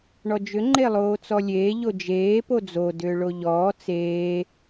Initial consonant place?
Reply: retroflex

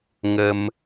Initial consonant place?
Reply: velar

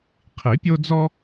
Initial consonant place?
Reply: uvular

